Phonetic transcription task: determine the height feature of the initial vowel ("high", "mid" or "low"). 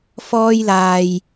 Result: mid